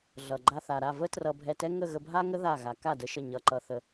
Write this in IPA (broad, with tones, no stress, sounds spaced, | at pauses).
ɮ ʌ˨ ɡ͡ǃ a˧ θ a˨ ɾ a˦˨ v ə˦ t r ʌ˧ bʱ ɛ˧ t ɛ˦ ŋ ə˦˨ ɣ ə˧ bʱ a˦ ŋ ə˦ ð a˦˨ ɣ a˨˦ k a˦˨ d ə˧ ʃ ə˦˨ ɲ ʌ˧ ǃ ʌ˧ θ ə˧